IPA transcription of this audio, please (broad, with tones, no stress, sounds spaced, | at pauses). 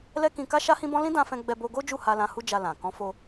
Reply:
l ɛ˦ k ĩ˧ k a˦ ʃ a˦ h ĩ˦ b ɔ̃˦ l ĩ˦ d ã˧ f ɛ̃˧ ɡ͡b ɛ˧ b o˧ ɡ o˦ d͡ʒ u˦˨ h a˧ l ã˧ h u˦ d͡ʒ a˧ l ã˨ k ɔ̃˨˦ f o˧